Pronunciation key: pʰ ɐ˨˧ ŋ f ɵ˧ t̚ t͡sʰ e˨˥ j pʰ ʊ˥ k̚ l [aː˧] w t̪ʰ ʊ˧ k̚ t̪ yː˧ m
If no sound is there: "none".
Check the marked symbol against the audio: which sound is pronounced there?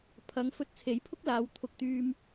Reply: aː˨˧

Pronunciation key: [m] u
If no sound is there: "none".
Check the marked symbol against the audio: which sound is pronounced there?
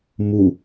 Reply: m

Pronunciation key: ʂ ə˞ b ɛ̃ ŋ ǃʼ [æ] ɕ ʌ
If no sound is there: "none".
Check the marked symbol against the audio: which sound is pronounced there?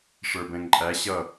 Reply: æ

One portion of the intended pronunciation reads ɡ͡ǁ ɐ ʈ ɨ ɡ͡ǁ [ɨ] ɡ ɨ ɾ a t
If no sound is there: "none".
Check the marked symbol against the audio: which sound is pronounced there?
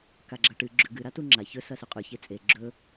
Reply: ʉ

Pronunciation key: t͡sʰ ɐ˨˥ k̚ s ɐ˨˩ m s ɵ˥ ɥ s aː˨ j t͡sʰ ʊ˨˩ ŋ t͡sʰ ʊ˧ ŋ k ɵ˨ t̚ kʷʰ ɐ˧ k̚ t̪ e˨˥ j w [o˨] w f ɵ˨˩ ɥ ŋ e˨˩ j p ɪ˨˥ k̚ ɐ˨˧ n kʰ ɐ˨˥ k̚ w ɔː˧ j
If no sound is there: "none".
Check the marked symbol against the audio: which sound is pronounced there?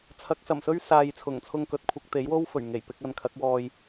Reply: o˥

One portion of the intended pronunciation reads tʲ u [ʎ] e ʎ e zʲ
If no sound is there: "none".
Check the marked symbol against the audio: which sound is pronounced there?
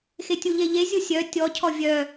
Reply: ʎ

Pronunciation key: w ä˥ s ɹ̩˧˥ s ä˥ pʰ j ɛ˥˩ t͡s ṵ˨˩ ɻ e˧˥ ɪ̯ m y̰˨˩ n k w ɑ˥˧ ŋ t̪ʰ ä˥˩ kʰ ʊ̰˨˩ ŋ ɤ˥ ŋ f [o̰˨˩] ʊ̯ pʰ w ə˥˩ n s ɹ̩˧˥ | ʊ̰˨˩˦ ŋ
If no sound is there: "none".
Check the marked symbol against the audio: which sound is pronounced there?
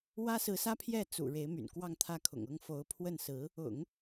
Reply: o˧˥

